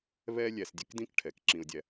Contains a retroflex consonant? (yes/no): yes